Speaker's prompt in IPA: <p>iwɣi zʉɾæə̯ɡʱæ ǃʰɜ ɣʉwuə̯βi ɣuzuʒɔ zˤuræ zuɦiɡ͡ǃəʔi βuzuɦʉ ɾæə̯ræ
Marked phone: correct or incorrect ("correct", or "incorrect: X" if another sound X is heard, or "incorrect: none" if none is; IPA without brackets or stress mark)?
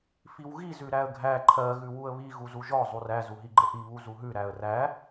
incorrect: f